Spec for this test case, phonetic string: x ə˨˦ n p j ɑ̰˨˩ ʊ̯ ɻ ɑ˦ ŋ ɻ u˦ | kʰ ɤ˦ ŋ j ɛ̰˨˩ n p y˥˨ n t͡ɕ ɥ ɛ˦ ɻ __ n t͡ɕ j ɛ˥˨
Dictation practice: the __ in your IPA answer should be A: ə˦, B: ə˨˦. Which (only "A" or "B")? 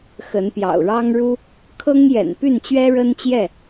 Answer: A